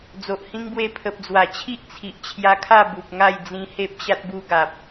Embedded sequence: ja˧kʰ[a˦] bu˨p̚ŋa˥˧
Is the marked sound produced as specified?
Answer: no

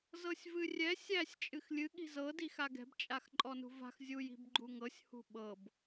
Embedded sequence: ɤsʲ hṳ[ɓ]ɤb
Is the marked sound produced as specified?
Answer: yes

